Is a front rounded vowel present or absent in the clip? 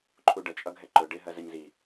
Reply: absent